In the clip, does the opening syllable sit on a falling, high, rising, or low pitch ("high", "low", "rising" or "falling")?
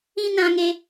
high